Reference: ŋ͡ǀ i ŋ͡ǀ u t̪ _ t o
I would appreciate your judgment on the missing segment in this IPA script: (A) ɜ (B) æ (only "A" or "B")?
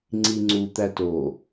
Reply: B